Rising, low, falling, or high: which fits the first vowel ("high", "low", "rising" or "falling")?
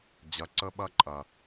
low